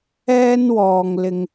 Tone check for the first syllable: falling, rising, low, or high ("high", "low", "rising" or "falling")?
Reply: high